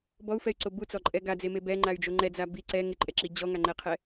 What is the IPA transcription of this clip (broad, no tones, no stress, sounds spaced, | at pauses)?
b ɔ u̯ f ɛ y̯ ǀ o b u t͡s ɔ ǃʼ ɛ ɡ a d͡z e m e b ɛ ŋ͡ǃ a y̯ d͡ʒ o ŋ͡ǃ ɛ d͡z a b i ǀ ɛ ŋ ɪ ǃʼ ɛ ǁ i d͡ʑ ɔ ŋ a ŋ͡ǃ ɛ qʰ ɛ